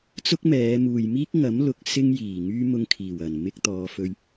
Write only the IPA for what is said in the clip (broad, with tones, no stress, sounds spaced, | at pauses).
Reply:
t͡s ʊ˥ k̚ m ɛː˨˧ m uː˨ j m iː˥ k̚ ŋ ɐ˨˥ m l ʊ˨˥ k̚ s ɪ˥ ŋ j iː˨˩ ŋ yː˥ m ʊ˧ ŋ kʰ iː˨˩ w ɐ˨˩ n m ɪ˧ k̚ t̪ ɔː˨˧ f ɵ˧ ɥ